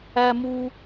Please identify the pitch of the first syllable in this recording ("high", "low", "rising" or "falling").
high